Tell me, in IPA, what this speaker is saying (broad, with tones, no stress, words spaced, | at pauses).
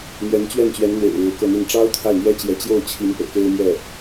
n̪jɛ˧˥n t͡ɕɥɛ˥˩nt͡ɕɥɛ˧˥n n̪wḛ˨˩ɪ̯ ɻɻ̩˧˥kɤ˥˧n̪i˥˩n ʈ͡ʂɑ˥ʊ̯ t̪ʰa˥˩ɪ̯n̪jɛ˥t͡ɕjɛ˧˥ t͡ɕjo˥˩ʊ̯t͡ɕʰi˧˥n pɤ̰˨˩ke˥ɪ̯mjɛ˥˩